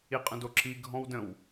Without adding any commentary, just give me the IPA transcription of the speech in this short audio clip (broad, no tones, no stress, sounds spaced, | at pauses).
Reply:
i qʼ ə̃ d o ǁ i ɡʱ ɔ̃ w d ə̃ w